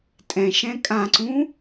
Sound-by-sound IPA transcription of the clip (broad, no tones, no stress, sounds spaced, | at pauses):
tʼ ɛ̃ ʃ ɛ̃ kʼ ã ǀ ũ